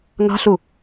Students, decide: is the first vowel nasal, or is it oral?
oral